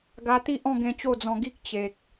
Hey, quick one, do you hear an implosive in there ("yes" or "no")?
no